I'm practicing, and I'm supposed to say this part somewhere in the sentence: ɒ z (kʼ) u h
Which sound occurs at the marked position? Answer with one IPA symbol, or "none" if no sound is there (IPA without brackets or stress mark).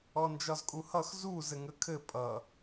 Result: kʼ